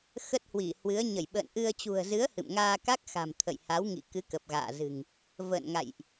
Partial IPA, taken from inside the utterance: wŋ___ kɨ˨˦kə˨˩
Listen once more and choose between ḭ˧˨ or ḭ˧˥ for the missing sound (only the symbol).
ḭ˧˨